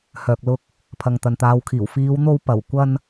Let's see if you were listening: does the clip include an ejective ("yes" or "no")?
no